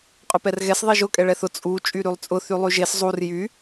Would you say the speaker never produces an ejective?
no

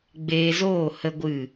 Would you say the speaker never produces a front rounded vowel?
yes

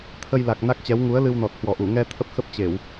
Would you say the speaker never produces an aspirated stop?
no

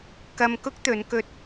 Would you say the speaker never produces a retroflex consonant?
yes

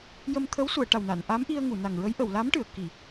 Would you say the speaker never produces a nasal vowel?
yes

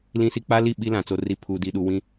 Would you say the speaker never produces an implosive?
no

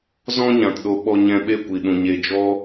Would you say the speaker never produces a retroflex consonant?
yes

